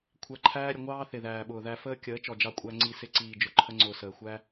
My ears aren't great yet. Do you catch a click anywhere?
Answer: yes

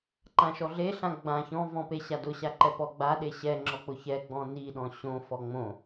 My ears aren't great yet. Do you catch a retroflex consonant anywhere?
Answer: no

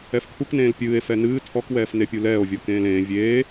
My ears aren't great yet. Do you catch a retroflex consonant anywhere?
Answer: no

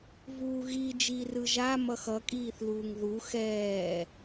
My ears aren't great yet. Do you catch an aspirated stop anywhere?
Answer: no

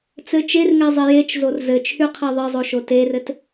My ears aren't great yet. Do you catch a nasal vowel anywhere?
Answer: no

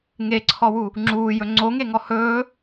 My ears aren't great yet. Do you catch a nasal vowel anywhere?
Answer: no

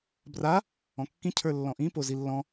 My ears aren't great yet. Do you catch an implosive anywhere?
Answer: no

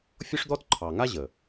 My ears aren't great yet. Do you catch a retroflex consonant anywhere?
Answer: yes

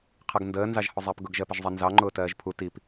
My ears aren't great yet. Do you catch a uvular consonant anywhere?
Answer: yes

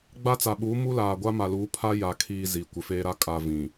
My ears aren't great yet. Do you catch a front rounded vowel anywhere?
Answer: no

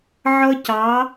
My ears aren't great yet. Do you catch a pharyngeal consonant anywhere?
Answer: yes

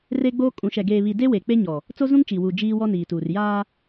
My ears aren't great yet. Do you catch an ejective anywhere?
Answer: yes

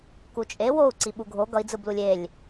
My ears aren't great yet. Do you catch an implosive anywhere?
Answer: yes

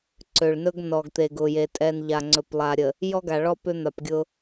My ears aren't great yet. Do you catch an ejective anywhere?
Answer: yes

